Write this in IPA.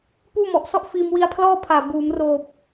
p uː˥˩ m ɔ˨˩ ʔ s ɔ˥˩ ʔ f iː˧ m w i˧ a̯ pʰ l ɔː˥˩ pʰ aː˨˩ b uː˩˦ m r oː˨˩ p̚

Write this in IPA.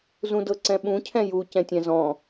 z ũ d ɤ ǀ ɛ̃ ɓ ũ cʰ ɛ̃ j u c ɛ̃ tʲ ɛ̃ z ɔ̃

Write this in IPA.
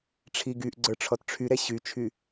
ʈ͡ʂʰ i ɡ y ʔ ɡ͡ǀ ə˞ ʈ͡ʂʰ ɔ t ʈ͡ʂʰ y ɾ ɛ ɕ y t͡ʃʰ y

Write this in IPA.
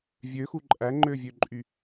vʲ ø x u ǃʼ æ ŋ͡ǃ ø vʲ ø ǃʼ y

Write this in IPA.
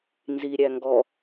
n z i ɾʲ æ ŋ ɡ ɔ

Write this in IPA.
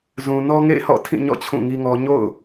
z ũ˨ n ɔ˦ ŋ ḛ˦˨ ɪ̯ h ɔ̰˦˨ tʰ ĩ˦˨ ɲ ɔ̰˦˨ t͡ɕʰ ũ˦˨ ŋ i˦ ŋ ɔ˦ ɲ o̰˦˨ ʊ̯

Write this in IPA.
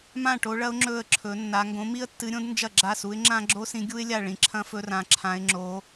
m ã˥˨ ʈ o˧˥ ɭ ɐ˧˥ ʊ̯ ŋ͡ǁ ɵ˥˨ ə̯ ǁʰ ɵ˧˥ nː a˧˥ ŋ ɡ õ˧˥ m i˥ ə̯ tː ɨ˧˥ ɾʲ õ˥ d n d͡ʒ ɐ˥˨ ɡ͡ǁ a˥˨ s u˧˥ ɪ̯ ŋ͡ǁ ã˥ ɡ͡ǁ o˥ s ĩ˧˥ ɡʲ u˥ ɪ̯ lʲ a˥˨ ɭ ĩ˧˥ ǁʰ ɐ̃˥ f ɵ˥ r ã˧˥ ǁʰ ã˧˥ ɪ̯ ŋ͡ǁ o˧˥

